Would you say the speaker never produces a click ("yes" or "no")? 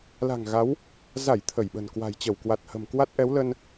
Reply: yes